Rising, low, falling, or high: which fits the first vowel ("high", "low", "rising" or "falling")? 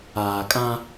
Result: low